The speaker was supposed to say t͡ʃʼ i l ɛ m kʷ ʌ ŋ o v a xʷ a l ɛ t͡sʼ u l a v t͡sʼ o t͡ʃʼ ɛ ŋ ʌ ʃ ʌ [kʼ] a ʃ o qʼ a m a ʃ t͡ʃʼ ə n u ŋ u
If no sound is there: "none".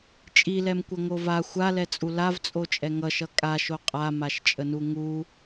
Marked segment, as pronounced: kʼ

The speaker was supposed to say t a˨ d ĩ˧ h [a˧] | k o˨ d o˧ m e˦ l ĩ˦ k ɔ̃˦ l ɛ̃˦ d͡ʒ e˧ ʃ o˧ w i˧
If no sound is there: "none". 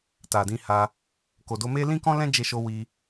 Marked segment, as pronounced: a˧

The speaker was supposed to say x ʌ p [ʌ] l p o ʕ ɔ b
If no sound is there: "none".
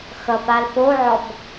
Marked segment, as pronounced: a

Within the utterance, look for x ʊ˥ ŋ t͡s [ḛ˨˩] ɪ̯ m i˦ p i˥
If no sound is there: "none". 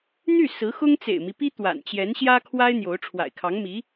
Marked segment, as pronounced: ḛ˨˩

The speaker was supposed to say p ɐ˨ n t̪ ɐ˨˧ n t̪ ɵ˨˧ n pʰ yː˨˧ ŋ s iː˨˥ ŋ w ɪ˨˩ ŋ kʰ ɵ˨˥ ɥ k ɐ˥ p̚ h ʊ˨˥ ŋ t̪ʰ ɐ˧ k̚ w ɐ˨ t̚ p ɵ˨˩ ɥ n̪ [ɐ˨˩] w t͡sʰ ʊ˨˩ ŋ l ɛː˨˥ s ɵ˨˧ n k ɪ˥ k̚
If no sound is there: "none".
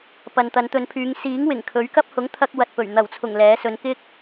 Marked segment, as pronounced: ɐ˨˩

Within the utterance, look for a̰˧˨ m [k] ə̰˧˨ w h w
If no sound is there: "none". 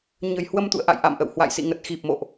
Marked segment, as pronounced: ʔ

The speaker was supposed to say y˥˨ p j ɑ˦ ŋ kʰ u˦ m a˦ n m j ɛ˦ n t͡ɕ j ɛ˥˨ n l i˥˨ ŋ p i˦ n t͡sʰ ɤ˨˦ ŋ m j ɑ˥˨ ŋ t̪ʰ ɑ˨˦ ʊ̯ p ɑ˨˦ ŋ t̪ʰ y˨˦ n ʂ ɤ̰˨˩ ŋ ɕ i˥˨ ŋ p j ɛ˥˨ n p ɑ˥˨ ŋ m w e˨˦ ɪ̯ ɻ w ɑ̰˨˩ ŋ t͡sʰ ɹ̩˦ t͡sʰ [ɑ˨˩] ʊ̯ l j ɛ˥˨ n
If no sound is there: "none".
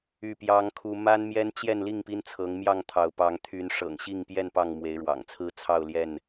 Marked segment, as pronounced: ɑ˥˨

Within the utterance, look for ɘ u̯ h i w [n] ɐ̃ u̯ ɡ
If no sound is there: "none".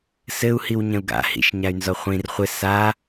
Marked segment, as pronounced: ɲ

